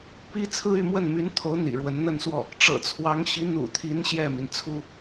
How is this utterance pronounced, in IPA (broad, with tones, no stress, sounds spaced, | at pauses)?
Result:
p i˥ t͡sʰ ɹ̩˥ y˥˧ m w ə˥˩ n m y˧˥ n t̪ʰ o˧˥ ʊ̯ n̪ ḭ˨˩ ɻ w ə˧˥ n n̪ ə˥˧ n s w ɔ˥˩ | ʈ͡ʂ ɤ̰˨˩ t͡sʰ w ɑ˧˥ ŋ ɕ i˧˥ n̪ ṵ˨˩ t̪ʰ i˧˥ n ɕ j ɛ˥˩ m i˩ n t͡sʰ u˥